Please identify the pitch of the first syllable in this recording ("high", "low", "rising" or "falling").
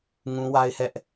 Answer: high